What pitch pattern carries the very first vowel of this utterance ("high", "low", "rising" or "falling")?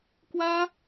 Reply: high